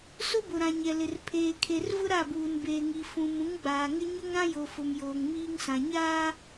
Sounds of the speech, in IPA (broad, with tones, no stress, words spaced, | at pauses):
sʊ˦bʊ˨ɾã˨ ɲɛ˨lɪ˨r pʰeː˨kʰe˨rvʊ˦ ɾa˦˨buː˨nbeː˨ŋi˨ fũ˨mũ˨˦ŋɡ͡baː˨ŋɪ˦ ɲʊ˦ŋ ɾã˦jo˨fʊ˨m joː˨ŋmiː˦ŋsã˨ ɲaː˦